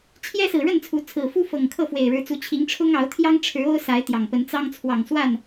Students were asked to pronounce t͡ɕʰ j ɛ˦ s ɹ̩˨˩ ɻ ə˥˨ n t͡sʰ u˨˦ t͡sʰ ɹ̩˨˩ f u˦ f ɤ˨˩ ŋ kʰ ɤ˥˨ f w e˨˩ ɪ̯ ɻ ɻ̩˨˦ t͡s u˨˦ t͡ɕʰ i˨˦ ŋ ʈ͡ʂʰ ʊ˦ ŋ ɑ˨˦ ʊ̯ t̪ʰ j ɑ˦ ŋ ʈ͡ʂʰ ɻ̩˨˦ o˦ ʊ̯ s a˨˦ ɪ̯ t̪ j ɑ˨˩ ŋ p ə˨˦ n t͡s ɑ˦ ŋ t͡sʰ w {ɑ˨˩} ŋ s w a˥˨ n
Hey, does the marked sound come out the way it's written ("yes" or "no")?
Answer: yes